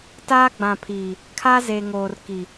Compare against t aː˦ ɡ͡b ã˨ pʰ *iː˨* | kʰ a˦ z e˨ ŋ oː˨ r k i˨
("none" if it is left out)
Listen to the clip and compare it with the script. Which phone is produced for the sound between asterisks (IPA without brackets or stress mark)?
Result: iː˨